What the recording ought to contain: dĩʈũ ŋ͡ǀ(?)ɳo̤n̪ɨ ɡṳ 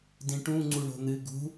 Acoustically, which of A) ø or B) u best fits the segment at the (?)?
B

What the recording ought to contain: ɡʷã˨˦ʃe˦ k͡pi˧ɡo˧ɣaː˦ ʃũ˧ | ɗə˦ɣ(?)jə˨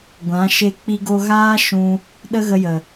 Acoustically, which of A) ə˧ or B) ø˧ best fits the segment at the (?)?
A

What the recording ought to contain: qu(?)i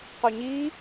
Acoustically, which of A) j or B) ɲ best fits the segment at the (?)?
B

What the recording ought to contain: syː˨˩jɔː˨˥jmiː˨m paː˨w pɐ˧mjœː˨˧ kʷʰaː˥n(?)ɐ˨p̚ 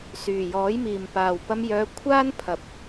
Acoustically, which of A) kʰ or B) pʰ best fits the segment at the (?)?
B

